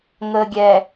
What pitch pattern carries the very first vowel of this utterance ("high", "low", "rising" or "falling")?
low